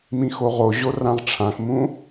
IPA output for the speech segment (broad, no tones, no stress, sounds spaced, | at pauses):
m ĩ x o ʁ o ʑ o r ã ʁ ʈ͡ʂʰ ã x m ũ